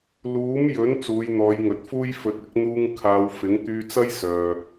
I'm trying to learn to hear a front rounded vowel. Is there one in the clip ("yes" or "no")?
yes